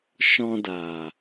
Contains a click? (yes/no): no